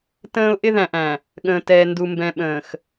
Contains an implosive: yes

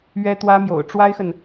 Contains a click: no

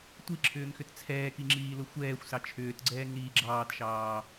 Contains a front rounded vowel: yes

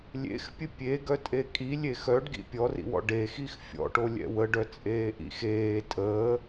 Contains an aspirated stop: no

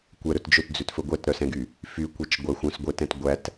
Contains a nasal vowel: yes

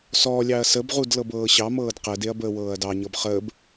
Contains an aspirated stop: no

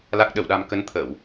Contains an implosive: yes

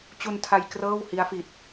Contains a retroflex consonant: no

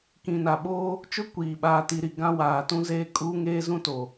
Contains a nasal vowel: yes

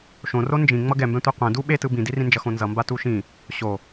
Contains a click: no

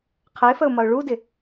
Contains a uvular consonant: yes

